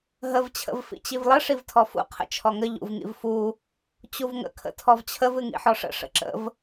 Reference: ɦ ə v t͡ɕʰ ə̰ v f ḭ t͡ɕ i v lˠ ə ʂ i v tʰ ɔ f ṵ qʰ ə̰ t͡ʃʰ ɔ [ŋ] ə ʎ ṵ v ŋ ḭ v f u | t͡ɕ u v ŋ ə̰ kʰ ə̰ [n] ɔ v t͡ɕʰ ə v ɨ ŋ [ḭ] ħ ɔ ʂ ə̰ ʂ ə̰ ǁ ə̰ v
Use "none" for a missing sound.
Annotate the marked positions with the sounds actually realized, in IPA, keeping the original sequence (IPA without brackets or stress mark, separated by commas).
ŋ, tʰ, ḭ